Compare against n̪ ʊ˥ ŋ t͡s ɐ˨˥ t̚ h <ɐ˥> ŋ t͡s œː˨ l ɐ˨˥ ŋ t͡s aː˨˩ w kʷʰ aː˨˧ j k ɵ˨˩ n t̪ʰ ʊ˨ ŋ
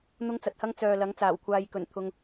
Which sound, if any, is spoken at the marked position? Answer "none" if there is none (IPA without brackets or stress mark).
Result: ɐ˥